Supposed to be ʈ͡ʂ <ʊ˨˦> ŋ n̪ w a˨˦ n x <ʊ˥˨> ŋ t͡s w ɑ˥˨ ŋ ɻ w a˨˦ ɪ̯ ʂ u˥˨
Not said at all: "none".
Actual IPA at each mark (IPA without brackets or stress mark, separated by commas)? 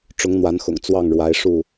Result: ʊ˨˦, ʊ̰˨˩